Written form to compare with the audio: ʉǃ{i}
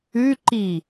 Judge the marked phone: correct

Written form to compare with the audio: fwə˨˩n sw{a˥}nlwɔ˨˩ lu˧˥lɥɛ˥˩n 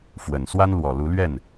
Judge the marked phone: correct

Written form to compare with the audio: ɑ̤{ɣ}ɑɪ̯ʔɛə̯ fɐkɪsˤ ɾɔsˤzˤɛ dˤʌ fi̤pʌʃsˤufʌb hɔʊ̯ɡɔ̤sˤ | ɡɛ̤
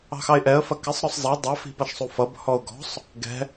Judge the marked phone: incorrect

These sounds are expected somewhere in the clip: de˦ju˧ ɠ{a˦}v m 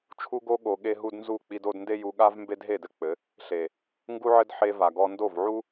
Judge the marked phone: correct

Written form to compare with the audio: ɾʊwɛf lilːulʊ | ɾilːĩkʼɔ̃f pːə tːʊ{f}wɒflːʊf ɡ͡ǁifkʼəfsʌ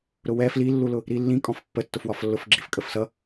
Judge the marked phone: correct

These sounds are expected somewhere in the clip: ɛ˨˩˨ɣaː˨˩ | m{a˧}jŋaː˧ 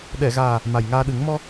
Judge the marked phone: incorrect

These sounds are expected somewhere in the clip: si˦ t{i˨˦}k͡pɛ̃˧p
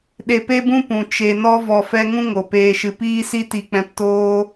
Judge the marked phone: incorrect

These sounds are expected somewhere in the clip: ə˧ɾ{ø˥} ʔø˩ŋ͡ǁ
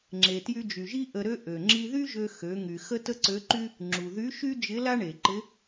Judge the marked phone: correct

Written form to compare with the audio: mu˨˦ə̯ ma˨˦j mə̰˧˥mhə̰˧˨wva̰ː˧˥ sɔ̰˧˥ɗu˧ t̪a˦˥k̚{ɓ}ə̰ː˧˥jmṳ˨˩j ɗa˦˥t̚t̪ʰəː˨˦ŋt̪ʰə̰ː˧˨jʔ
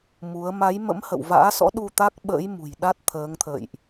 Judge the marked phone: correct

